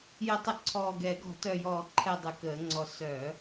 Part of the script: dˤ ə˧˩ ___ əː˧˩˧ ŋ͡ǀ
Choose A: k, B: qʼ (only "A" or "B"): A